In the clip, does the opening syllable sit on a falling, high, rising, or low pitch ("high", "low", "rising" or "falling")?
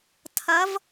rising